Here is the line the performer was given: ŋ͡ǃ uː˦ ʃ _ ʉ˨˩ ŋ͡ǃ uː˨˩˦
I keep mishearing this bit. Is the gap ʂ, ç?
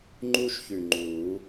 ç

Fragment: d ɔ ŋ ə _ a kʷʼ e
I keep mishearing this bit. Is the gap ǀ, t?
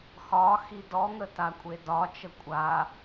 t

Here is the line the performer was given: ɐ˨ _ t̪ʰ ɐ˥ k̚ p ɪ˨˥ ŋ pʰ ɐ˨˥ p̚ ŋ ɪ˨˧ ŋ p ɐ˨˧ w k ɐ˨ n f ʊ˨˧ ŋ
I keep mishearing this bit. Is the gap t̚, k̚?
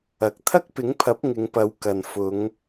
k̚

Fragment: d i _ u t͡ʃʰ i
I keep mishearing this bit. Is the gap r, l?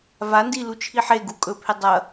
l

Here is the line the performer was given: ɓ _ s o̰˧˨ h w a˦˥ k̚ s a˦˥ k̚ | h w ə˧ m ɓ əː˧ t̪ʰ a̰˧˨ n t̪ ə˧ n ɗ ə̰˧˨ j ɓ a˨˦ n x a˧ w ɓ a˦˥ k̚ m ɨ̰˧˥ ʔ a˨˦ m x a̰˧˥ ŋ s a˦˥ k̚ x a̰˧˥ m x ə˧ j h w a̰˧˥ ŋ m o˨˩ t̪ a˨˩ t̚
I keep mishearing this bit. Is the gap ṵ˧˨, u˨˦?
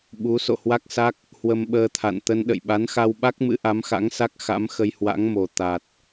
u˨˦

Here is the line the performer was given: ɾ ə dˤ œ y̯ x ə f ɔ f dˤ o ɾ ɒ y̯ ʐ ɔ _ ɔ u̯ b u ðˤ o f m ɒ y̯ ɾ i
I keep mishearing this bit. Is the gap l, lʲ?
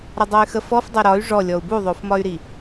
lʲ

